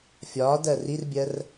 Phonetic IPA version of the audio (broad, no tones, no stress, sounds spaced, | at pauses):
fʲ ɒː d ɜ r i r bʲ ɜ r